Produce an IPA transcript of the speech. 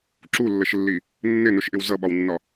ǁ u lː ə ʃ lː i | nː ɪ n ʊ ʃ ʔ ɪ w z ʌ ɓ ɒ w nː ɒ

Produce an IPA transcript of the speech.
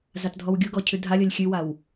z a t dʱ ɔ w ɡʲ u ɡ ɔ cʰ ʉ dʱ a lʲ ɔ lʲ xʲ ʉ w a w

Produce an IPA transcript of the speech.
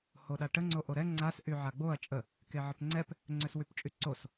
h o ɗ a ʈ ə ŋ͡ǀ o ʔ o ɾ ɛ ŋ͡ǀ a s ʔ y ʕ a ɡ͡b o ɐ̯ t͡ʃʼ ə | k e ʕ ə p ŋ͡ǀ ɛ p | ŋ͡ǀ ø s w y p t͡ʃʼ y ǀ o s

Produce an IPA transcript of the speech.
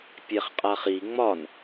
pʲ ɛ χ qʼ a χ i ŋ͡m ɒ n

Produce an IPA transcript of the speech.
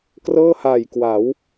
k r ɤː˥˩ h aː˨˩ j k w a˩˦ w

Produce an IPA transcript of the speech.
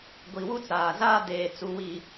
ɡʷ i˨ w u˦ t͡s aː˨ z aː˦ d eː˨ t͡s u˨ w i˨

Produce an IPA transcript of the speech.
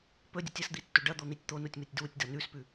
p ɵ dʲ u tʲ ɐ s d̪ i tː ɵ ɖ ɐ d̪ o n̪ i tʲ t̪ o n u tʲ m ɨ tʲ d w u tʲ d ɐ n ʉ s p ʉ

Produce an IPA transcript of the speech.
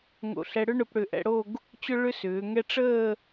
ŋ o̰˧˩ ɬ ɛ˧ ɽ ʏ˥ ɳ ʊ˧ p ɽ ʏ˧˩ ʔ ɛ̰˧ ɽ o˥˧ ɡ | t͡ɕ ʊ˥ ɭ ʏ˥ s ʏː˩˧ ŋ ɛ˥ ʈ͡ʂ əː˥˧

